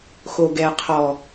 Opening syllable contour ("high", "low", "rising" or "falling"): low